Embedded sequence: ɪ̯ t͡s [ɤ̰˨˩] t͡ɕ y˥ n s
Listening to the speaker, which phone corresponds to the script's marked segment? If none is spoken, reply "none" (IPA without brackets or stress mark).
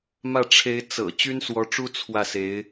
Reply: ɤ̰˨˩